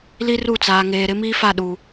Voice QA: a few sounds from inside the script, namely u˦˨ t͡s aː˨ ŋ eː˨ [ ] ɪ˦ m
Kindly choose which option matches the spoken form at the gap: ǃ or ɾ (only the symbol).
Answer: ɾ